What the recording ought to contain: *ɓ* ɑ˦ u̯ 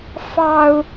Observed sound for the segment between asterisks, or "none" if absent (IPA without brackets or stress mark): f